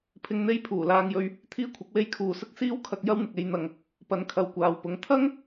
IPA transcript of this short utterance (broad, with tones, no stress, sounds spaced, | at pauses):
pʰ ɪ˧ ŋ n̪ e˥ j pʰ uː˨˩ l aː˧ ŋ j ɵ˧ ɥ | t̪ʰ iː˥ kʷʰ ɐ˨˥ k̚ w e˥ j kʰ uː˨ s ʊ˥ k̚ s iː˥ w kʰ ɐ˧ k̚ j ɐ˥ w n̪ ɪ˨ k̚ e˧ j n̪ ɐ˨ ŋ | p ɐ˨˥ n kʰ ɐ˨ w kʷ aː˨ w p ʊ˨˥ ŋ t̪ʰ ɐ˥ ŋ